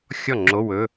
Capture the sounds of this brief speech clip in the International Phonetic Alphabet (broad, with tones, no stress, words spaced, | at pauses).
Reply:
xʲɔ˥˩ŋ͡ǁo˧˥˧ wɵ˧˥˧